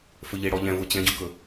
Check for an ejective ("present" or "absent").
absent